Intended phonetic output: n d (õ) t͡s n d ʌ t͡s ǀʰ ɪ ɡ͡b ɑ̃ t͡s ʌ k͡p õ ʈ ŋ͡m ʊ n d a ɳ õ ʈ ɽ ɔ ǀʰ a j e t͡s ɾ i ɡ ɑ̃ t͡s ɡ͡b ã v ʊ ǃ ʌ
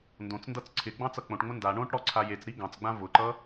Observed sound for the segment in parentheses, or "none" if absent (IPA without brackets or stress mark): õ